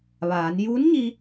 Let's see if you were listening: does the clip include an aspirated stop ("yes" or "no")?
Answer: no